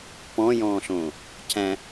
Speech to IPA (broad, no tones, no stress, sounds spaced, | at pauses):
p ɔ̃ j ɔ̃ː ɬ õː | c æ̃